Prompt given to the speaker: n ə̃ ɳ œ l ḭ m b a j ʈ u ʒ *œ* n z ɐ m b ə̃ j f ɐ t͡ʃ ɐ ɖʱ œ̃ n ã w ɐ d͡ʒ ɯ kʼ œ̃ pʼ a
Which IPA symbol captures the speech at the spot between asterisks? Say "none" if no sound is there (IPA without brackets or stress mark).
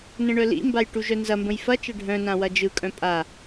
œ